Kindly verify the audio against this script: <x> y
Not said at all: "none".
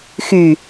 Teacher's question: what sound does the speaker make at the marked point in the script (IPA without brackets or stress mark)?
x